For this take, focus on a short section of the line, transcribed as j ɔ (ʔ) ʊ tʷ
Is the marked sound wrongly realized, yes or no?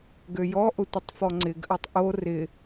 no